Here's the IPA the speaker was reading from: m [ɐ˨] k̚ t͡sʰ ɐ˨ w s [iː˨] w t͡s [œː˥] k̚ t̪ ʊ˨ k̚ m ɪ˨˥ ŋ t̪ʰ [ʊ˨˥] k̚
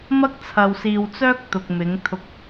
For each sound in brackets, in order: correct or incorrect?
incorrect: ɐ˥, correct, correct, incorrect: ʊ˧

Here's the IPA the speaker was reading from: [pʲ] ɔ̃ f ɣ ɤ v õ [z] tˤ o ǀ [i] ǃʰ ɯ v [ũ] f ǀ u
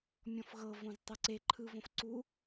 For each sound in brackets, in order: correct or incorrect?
incorrect: mʲ, correct, incorrect: e, incorrect: õ

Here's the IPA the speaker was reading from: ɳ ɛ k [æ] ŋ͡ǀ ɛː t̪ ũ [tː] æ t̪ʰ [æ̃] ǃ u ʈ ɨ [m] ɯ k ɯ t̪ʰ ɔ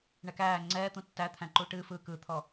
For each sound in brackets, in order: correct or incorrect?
incorrect: æː, correct, correct, incorrect: f

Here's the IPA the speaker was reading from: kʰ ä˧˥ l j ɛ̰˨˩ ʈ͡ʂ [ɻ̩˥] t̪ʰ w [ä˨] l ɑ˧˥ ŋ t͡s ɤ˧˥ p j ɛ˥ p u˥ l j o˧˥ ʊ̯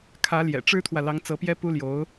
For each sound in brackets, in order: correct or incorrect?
correct, correct

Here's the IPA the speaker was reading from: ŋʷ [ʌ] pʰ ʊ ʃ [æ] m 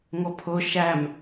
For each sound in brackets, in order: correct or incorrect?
correct, correct

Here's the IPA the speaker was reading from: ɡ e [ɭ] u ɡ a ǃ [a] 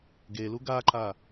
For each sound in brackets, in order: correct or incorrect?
incorrect: l, correct

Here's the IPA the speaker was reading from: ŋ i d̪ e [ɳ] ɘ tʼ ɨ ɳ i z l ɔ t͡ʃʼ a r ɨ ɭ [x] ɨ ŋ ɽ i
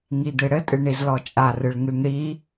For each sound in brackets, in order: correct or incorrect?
incorrect: ɽ, incorrect: ŋ

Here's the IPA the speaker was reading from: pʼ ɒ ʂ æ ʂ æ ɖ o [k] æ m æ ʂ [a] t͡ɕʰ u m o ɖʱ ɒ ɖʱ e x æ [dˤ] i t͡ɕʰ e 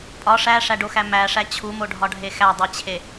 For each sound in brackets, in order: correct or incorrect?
incorrect: x, incorrect: æ, correct

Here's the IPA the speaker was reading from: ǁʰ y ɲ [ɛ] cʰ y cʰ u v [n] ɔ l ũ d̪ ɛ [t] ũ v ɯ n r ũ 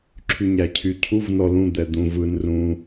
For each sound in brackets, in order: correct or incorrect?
incorrect: æ, correct, incorrect: d̪

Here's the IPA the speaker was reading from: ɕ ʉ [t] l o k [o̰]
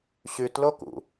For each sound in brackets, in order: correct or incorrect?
correct, incorrect: ṵ

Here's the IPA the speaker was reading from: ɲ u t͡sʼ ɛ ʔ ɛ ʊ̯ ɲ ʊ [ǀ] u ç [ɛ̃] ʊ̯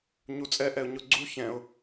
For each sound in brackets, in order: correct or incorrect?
incorrect: ɡ͡ǀ, correct

